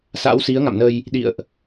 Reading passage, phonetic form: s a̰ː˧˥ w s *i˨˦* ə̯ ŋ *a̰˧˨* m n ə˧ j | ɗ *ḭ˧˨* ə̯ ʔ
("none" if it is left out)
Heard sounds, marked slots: i˨˦, a̰˧˨, ḭ˧˨

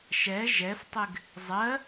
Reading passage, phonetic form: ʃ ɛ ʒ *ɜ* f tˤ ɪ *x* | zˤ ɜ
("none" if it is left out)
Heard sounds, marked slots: ɛ, ɡ

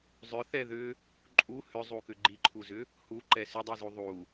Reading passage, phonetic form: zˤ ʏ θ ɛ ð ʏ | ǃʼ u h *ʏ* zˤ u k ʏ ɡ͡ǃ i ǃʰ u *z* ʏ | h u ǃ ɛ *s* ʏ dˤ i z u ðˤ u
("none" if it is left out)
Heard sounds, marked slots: ʏ, z, s

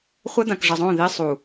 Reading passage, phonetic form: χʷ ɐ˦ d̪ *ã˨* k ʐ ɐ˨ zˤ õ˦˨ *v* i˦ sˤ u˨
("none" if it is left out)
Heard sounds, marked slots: ã˨, ð

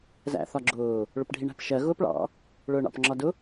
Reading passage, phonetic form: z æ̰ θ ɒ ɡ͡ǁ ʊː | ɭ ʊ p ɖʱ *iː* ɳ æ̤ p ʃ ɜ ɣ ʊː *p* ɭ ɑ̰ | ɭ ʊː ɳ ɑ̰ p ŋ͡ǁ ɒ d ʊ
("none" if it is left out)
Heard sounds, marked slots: i, p

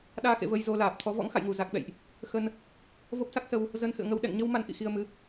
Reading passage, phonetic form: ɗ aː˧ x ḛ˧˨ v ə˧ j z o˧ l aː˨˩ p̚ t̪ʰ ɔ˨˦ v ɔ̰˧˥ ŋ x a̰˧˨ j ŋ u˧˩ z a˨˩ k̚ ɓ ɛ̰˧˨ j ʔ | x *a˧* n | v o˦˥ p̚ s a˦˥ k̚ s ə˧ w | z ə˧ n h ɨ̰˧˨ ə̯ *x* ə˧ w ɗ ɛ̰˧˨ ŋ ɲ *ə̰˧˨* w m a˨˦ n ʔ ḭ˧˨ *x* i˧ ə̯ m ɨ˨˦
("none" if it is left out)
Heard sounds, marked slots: ə˧, ŋ, ə˧, x

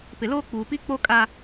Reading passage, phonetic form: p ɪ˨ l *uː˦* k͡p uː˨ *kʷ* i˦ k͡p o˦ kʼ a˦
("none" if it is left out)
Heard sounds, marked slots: oː˦, p

